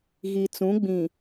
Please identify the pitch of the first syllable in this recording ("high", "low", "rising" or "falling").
low